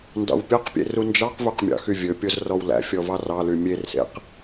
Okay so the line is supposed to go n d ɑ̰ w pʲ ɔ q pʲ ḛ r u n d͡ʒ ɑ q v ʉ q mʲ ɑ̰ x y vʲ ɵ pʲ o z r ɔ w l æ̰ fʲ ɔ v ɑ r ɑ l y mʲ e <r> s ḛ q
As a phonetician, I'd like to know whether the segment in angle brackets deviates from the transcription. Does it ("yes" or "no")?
no